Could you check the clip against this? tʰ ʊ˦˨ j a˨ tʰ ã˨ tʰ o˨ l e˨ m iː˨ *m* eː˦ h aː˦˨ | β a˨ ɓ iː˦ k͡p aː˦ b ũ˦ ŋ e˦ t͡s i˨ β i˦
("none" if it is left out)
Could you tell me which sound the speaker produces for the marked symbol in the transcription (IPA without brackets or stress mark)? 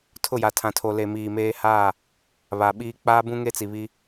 m